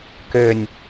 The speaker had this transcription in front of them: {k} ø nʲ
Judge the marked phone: correct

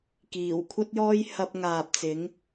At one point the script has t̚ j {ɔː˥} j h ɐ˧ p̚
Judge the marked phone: correct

